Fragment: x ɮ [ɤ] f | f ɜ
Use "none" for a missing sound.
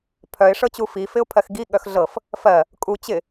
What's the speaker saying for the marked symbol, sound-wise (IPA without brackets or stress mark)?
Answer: ɤ